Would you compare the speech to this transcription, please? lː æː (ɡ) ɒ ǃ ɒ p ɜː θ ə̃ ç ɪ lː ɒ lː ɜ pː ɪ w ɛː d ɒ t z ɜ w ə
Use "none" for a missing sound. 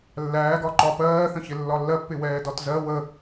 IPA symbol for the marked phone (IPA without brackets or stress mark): ɡ